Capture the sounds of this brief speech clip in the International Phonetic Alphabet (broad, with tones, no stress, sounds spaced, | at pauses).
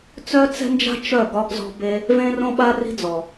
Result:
t͡s œ˦ t͡s ɛ̤˦ n d͡ʒ a̤˦ t͡ʃ œ˦˨ ɡ ɒ˧ ɡ z ɔ̤˧ b e˦ | v ẽ˦ r õ˦ ɓ a˦ r i̤˦ d͡z ɔ˨